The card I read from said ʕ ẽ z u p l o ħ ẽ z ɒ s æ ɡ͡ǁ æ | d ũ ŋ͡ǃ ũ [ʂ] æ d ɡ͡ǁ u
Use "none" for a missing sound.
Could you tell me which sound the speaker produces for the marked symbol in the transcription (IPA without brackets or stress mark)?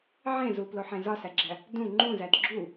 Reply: z